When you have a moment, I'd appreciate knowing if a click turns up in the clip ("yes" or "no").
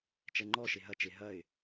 yes